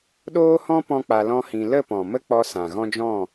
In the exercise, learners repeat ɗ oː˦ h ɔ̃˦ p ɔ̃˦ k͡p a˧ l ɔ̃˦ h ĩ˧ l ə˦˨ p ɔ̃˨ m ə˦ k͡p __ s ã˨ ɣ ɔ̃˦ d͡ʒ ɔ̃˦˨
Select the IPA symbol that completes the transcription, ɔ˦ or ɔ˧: ɔ˧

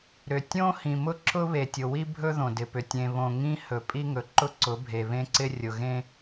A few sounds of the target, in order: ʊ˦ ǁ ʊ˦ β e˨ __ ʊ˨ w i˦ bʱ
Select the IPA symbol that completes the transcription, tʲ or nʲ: tʲ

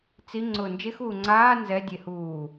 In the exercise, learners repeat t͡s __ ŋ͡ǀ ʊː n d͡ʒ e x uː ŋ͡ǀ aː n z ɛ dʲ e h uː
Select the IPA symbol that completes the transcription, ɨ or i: i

